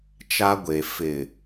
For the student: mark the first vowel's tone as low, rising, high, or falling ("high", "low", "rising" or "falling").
high